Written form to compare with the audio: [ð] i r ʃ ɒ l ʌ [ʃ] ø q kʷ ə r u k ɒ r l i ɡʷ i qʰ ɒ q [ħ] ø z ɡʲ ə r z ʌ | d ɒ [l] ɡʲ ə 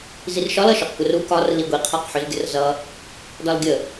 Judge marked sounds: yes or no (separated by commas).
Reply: no, yes, yes, yes